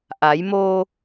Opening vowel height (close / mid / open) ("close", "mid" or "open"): open